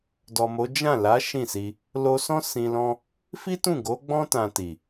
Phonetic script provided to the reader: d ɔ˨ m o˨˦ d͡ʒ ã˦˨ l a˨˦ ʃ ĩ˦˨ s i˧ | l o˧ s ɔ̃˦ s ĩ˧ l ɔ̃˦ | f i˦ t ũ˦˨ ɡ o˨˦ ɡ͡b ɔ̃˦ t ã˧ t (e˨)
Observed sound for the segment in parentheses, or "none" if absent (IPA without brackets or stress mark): i˨